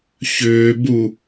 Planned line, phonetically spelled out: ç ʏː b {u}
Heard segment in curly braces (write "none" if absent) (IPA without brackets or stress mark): u